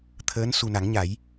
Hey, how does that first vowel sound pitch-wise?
rising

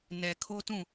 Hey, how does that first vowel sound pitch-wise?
low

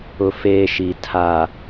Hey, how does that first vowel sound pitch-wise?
high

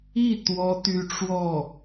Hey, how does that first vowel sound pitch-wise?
falling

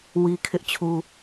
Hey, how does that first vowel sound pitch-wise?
high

